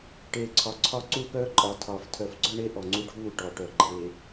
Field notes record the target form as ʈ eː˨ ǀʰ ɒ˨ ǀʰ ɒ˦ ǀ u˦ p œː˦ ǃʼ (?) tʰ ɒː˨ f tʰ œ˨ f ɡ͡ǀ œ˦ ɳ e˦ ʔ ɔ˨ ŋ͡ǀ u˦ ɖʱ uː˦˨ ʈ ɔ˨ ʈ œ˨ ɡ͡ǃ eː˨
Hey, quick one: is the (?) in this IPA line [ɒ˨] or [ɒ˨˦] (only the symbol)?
ɒ˨˦